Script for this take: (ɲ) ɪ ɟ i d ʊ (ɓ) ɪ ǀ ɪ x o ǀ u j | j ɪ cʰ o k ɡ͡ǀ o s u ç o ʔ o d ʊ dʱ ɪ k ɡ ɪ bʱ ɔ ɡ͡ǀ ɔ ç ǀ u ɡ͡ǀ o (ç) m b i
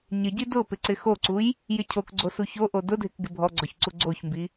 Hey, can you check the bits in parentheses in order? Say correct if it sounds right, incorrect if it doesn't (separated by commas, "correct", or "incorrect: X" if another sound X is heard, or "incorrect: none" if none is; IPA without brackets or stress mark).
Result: correct, incorrect: p, correct